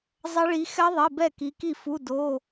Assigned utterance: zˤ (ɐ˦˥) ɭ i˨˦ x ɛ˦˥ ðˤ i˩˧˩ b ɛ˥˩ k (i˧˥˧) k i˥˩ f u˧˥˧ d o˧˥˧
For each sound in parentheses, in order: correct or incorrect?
correct, incorrect: i˨˦

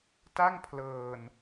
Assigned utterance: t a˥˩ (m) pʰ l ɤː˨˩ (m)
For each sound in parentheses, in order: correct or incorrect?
incorrect: ŋ, incorrect: n

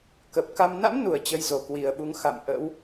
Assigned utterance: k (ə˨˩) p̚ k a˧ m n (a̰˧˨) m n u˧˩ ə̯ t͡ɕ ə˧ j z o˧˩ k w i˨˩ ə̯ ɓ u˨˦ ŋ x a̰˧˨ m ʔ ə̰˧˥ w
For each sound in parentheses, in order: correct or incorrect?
correct, incorrect: a̰˧˥

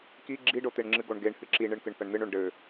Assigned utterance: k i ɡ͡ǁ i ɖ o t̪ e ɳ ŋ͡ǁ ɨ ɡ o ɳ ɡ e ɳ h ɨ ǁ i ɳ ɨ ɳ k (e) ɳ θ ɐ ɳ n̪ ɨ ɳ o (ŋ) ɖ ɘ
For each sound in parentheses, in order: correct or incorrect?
incorrect: ɨ, incorrect: ɳ

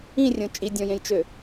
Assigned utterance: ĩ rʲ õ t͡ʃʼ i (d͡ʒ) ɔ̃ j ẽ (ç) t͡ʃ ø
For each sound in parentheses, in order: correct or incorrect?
incorrect: dʲ, incorrect: j

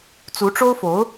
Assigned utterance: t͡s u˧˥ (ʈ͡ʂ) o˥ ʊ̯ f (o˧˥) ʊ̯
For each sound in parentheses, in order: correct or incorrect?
correct, correct

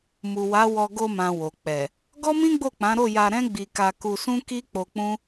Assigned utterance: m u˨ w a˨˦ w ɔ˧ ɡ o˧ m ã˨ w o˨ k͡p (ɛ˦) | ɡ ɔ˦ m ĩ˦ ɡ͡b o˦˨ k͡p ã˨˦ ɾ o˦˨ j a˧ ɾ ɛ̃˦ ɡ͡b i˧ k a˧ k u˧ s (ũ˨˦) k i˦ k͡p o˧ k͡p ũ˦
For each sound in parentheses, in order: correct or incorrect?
incorrect: ɛ˨, incorrect: ũ˦

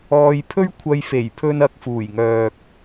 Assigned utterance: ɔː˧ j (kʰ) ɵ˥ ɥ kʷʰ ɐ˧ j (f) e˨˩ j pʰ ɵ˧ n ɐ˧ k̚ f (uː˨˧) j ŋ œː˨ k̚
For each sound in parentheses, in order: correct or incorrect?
incorrect: pʰ, correct, incorrect: uː˨˩

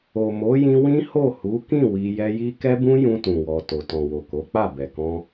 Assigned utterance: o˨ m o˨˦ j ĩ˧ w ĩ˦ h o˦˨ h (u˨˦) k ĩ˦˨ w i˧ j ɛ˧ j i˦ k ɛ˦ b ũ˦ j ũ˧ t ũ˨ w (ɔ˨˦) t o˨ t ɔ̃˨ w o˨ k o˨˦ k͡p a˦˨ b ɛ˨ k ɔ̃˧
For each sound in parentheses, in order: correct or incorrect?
correct, incorrect: ɔ˨

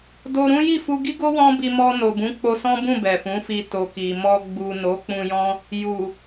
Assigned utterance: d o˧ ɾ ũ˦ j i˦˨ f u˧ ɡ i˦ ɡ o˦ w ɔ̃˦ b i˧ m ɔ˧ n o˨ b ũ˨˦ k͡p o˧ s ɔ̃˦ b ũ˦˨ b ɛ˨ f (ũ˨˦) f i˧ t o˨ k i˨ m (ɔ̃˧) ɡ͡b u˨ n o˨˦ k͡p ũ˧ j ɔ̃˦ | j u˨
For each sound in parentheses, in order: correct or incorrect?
correct, incorrect: ɔ˧

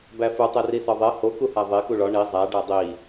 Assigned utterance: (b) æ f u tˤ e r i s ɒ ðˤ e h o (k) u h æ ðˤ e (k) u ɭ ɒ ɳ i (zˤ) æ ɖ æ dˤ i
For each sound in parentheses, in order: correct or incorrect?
correct, correct, correct, correct

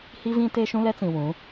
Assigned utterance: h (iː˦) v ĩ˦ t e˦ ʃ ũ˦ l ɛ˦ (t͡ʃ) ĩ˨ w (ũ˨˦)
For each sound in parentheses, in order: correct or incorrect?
incorrect: i˦, incorrect: t͡s, correct

